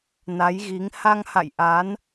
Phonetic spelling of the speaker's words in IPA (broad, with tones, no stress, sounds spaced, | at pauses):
n a˨˦ j ɣ i˨˦ ŋ h a˧ ŋ h a̰˧˨ j ʔ a˨˦ n